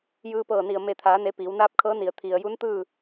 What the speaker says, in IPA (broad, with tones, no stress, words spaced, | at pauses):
jɯː˧pɤː˧˩ni˧˩ə̯ me˧˩t̪ʰaː˩˧ne˩˧ piː˩˧wnaː˧˥p̚kʰɤː˧˥ni˩ə̯ t̪ʰi˩ə̯ju˧˥nt̪ɯː˥˨